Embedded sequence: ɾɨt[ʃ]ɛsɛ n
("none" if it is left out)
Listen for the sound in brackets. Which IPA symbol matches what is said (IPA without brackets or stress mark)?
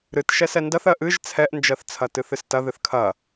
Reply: ʃ